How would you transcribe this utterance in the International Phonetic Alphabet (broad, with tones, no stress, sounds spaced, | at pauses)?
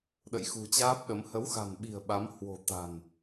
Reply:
ɗ ə̰˧˨ j x ṳ˨˩ t͡ɕ aː˦˥ p̚ ɗ ə˨˦ m h ə˨˦ w x a̤˨˩ n ɓ i̤˨˩ ə̯ ɓ a˨˦ m h w o̤˨˩ t̪ a̤˨˩ n